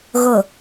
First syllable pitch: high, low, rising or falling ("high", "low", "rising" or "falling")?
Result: low